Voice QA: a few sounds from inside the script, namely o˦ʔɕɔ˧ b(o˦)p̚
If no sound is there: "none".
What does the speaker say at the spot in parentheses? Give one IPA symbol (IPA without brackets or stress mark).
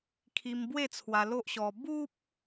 u˦